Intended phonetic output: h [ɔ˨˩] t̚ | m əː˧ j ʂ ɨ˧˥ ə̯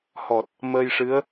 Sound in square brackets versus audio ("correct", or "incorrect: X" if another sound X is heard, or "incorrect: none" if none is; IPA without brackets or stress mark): correct